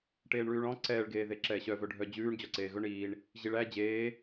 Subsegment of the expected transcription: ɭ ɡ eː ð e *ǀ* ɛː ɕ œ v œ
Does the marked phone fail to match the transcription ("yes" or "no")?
yes